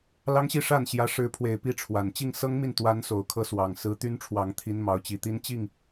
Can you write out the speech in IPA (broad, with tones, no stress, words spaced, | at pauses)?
lɑ˥ŋɕi˥˧ʂa˥˩nɕjä˧˥ ʂɻ̩˧˥pʰwe˨˩ɪ̯pi˥˩ ʈ͡ʂʰwa˨˩n t͡ɕi˥˩ŋsɤ˥ŋmi˥˩nt̪wa˧˥n so˨˩ʊ̯kʰɤ˥swɑ˨˩ŋ sɹ̩˧˥t̪y˥nʈ͡ʂʰwɑ˨˩ŋt̪ʰi˧˥n mɑ˧˥ʊ̯t͡ɕi˧˥t̪i˥n t͡ɕi˥˩ŋ